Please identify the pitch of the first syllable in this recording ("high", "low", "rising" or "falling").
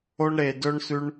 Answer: high